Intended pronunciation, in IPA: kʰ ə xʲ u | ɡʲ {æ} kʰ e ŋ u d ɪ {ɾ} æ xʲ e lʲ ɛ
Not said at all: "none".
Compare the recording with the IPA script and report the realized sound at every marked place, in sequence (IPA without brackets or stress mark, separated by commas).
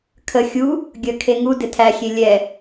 ə, tʰ